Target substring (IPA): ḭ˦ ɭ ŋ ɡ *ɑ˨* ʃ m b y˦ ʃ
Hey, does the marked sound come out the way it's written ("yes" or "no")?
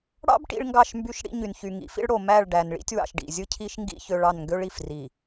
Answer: no